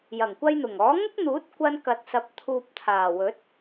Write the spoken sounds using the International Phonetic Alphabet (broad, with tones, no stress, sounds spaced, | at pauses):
j ɐ˨˩ ŋ kʷ ɐ˧ j n̪ ʊ˨˩ ŋ ɔː˨˥ ŋ ʊ˥ k̚ n̪ uː˨˥ t̚ kʷ ɐ˥ n k ɐ˧ t̚ s ɐ˧ p̚ t̪ʰ uː˨ p̚ t̪ʰ aː˨˩ w ɵ˨˥ t̚